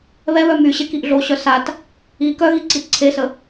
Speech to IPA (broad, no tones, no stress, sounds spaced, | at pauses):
β ɛ β œ m y ɕ e k i ʔ ɮ o ɕ œ s a t | i k œ ɣ i ǀ i t ǀʰ e s ə